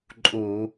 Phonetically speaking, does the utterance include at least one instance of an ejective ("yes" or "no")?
yes